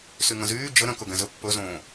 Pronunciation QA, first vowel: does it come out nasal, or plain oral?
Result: oral